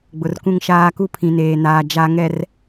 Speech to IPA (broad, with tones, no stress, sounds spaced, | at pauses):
ɡ͡b ʊ˨ r k ũ˦ ŋ ʃ aː˦ k u˦ pʰ ĩ˨ n eː˨ n aː˨ d͡ʒ a˨ ŋ ɛ˨ r